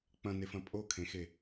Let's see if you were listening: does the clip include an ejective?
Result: yes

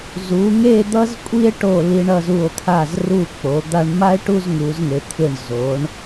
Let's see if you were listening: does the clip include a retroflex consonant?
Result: yes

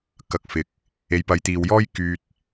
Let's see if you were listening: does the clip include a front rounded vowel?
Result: yes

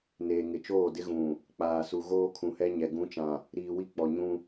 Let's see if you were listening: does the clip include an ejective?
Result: no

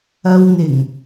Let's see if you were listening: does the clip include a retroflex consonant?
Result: no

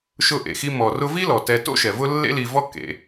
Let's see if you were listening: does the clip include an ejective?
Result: no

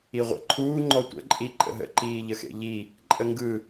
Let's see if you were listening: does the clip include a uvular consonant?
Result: yes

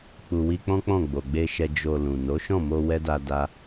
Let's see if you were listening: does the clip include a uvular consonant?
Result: no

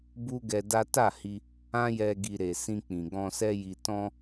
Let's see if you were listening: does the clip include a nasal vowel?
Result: yes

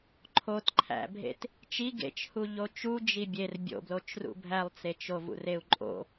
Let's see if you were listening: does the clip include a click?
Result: yes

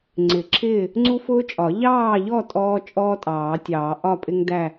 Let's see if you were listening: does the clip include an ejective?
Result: yes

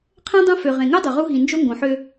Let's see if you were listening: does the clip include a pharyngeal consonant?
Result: yes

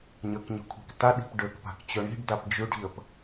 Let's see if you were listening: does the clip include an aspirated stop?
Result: yes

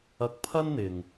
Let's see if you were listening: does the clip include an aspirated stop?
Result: yes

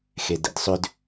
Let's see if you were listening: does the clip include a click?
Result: no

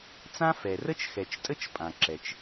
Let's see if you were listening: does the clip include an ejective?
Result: yes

